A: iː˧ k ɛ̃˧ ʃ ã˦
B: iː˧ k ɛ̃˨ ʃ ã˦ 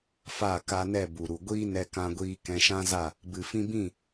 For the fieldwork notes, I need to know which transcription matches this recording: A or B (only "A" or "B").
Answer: A